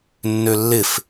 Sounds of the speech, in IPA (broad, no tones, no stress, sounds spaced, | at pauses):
nː ø lː ɪ f